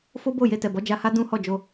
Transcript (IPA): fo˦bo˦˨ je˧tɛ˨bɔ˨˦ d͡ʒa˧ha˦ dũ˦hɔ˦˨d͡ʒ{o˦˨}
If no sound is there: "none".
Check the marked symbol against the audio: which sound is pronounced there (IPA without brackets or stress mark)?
o˧